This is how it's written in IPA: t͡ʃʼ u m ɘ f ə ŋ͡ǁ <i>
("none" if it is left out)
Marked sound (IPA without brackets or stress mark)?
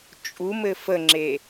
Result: e